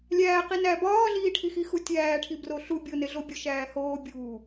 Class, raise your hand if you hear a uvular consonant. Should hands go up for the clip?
yes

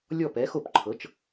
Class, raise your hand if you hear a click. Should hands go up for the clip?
yes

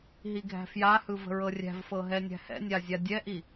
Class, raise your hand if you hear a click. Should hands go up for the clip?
no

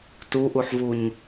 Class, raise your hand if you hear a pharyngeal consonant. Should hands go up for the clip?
yes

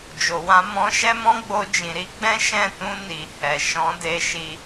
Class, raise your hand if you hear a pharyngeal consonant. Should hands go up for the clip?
no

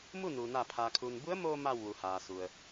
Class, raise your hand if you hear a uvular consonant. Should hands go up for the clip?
no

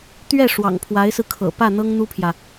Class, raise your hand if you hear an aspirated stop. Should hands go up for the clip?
yes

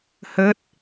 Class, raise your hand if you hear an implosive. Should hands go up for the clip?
no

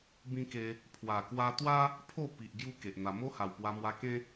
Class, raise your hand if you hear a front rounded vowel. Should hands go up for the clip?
no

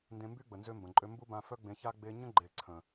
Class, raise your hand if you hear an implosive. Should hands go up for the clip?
no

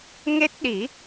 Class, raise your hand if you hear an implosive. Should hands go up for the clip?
yes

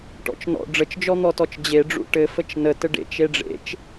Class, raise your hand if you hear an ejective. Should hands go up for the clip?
no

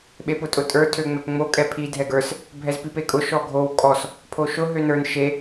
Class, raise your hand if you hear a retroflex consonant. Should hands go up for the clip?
no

